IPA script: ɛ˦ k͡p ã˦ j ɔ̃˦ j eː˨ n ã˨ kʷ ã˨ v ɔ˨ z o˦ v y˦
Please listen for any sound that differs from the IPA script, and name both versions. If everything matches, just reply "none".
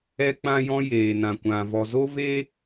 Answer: y˦ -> e˦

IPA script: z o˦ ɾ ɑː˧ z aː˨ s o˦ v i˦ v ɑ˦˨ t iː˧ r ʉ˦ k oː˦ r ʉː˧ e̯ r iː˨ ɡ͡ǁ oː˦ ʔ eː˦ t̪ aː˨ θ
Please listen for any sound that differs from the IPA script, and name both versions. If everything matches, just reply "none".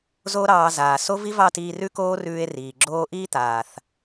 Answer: eː˦ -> iː˦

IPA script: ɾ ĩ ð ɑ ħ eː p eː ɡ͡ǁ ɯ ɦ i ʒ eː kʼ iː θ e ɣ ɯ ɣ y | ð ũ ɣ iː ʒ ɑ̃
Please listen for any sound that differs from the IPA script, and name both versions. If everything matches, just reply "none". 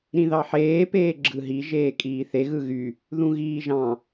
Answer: none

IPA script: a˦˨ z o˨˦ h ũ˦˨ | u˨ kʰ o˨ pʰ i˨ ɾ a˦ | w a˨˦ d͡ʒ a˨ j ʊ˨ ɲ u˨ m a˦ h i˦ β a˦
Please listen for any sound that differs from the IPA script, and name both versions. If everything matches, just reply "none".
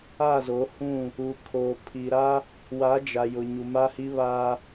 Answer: none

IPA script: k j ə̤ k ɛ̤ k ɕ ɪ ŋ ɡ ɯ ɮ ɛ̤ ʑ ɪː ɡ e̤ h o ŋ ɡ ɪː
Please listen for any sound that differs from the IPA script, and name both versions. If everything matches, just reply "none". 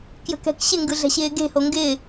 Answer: ʑ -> ɕ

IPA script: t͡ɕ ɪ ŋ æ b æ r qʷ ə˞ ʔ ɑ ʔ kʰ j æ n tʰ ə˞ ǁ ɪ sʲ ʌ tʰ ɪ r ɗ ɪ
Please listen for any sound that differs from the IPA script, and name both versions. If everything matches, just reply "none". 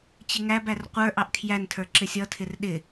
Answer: none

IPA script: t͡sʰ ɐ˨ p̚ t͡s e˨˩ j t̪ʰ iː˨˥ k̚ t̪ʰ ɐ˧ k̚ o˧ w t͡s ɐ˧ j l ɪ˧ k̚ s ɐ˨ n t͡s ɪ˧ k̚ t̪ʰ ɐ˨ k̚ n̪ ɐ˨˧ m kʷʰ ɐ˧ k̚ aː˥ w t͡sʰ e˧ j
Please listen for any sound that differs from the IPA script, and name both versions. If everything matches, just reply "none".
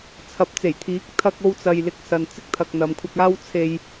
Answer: none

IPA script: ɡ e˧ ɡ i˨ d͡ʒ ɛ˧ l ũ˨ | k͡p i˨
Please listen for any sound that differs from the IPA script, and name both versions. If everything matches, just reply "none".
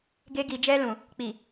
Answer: none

